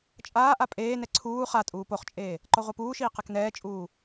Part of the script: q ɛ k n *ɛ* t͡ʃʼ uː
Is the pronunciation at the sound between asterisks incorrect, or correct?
incorrect